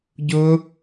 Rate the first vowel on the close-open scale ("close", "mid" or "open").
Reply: close